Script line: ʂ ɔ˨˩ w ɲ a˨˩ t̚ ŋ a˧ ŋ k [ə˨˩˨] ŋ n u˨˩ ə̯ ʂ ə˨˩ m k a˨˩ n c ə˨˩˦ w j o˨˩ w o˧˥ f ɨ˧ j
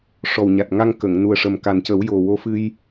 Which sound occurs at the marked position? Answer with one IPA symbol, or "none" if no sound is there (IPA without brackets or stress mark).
ə˨˩˨